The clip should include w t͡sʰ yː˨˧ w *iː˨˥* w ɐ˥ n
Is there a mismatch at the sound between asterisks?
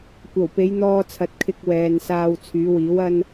no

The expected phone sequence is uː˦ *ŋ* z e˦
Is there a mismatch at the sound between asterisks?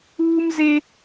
yes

